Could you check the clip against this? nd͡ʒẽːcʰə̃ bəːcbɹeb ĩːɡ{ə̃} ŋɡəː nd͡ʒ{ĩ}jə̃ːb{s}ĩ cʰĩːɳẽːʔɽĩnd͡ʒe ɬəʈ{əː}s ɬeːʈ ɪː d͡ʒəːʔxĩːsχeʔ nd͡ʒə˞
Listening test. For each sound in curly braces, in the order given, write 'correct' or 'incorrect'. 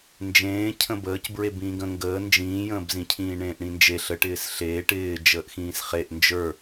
correct, incorrect: ĩː, incorrect: z, incorrect: ɪː

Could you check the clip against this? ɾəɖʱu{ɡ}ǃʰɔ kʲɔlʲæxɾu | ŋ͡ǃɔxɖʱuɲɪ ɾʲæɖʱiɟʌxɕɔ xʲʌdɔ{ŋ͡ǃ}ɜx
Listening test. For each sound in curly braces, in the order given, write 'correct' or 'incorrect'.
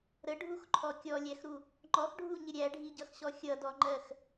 incorrect: x, correct

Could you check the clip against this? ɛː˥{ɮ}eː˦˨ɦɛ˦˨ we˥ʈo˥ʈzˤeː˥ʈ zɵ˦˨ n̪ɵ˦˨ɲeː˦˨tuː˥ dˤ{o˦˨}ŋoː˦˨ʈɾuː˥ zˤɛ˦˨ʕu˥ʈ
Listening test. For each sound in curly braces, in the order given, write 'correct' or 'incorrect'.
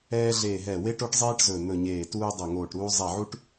correct, correct

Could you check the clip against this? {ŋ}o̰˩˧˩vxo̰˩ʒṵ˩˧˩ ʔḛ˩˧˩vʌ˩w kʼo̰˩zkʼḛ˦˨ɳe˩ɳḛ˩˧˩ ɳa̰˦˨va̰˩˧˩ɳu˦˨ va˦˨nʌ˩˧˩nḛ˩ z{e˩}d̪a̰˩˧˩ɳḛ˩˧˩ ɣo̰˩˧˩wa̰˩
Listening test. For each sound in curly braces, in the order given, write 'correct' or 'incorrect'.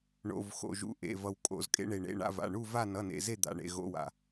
incorrect: ɳ, incorrect: e˦˨

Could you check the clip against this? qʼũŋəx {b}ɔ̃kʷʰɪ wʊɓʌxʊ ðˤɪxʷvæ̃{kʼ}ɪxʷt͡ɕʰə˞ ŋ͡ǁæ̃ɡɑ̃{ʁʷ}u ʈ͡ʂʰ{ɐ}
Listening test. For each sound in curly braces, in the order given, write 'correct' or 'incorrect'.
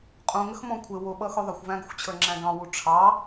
incorrect: m, incorrect: ɡ, incorrect: w, incorrect: ɑ

